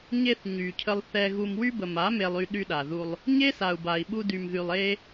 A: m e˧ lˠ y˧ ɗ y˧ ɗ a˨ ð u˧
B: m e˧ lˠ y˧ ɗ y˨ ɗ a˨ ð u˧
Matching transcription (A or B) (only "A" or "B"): A